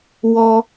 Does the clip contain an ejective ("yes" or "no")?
no